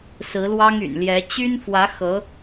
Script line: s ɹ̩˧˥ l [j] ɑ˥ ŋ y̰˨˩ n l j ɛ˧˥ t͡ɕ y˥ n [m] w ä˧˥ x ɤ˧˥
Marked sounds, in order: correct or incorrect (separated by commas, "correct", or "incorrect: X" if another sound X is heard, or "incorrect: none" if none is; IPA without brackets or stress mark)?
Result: incorrect: w, incorrect: f